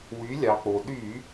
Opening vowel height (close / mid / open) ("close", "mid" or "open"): close